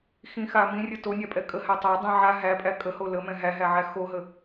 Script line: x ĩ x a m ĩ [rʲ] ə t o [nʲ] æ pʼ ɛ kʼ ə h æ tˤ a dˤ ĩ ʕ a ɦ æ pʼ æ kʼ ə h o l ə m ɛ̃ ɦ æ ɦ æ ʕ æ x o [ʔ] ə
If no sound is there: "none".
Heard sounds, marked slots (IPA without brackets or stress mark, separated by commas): rʲ, nʲ, ɦ